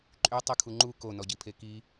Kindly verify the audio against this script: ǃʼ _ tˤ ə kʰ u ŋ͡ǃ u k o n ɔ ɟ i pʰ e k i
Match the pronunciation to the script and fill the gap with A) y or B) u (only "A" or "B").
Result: A